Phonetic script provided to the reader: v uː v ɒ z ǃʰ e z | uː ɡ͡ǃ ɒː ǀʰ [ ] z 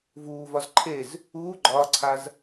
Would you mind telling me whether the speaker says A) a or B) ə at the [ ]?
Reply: A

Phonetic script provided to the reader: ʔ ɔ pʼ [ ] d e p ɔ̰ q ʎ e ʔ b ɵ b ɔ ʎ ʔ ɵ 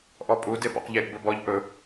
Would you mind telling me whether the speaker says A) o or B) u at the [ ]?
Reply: B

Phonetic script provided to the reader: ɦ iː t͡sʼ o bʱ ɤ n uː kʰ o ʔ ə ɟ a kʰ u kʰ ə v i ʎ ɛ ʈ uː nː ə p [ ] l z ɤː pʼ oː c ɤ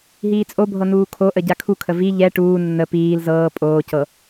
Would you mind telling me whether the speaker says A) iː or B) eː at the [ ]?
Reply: A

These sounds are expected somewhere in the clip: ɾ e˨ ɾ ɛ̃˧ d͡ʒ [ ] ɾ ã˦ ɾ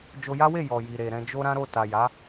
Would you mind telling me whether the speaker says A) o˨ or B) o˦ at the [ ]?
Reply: B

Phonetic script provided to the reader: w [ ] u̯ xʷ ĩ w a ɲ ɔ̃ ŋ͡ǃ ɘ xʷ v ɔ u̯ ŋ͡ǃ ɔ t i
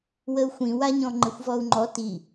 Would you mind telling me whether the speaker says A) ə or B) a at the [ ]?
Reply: A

